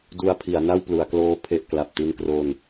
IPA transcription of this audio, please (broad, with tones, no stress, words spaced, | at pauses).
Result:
du˧a̯pʰi˩˦a̯ na˥˩wplu˩˦a̯kloː˦˥ pʰe˨˩ʔ kla˨˩p̚ ti˧nkro˧n